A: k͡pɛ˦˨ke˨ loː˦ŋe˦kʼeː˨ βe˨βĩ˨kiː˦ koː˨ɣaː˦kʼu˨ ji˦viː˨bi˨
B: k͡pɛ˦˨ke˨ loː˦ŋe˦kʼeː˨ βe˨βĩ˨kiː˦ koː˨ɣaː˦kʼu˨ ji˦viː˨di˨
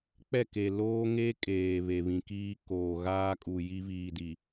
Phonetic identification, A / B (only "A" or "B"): B